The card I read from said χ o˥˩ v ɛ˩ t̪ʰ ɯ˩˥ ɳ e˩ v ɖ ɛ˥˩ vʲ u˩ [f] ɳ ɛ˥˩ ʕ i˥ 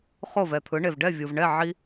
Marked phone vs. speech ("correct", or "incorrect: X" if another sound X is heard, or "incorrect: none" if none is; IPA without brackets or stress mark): incorrect: v